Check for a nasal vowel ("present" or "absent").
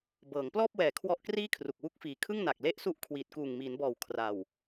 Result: absent